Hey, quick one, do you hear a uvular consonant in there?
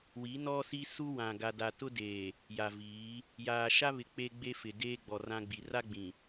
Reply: no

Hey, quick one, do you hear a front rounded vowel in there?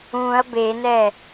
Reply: no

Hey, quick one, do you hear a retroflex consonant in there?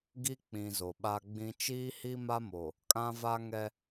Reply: no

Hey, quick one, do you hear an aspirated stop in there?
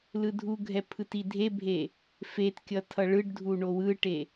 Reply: yes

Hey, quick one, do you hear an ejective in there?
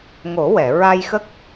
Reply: no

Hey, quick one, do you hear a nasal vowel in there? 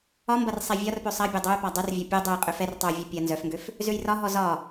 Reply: no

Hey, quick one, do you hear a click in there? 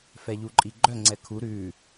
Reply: yes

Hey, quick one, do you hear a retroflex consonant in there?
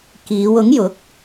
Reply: no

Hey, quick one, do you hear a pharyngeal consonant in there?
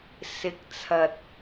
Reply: no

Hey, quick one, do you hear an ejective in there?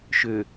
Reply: no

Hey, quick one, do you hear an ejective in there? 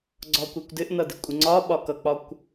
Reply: yes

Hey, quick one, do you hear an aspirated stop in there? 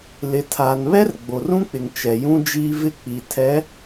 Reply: yes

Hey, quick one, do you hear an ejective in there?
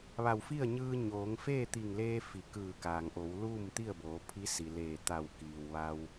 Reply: no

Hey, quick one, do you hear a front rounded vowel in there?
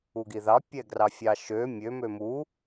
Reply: yes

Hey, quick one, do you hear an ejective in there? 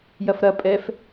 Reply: yes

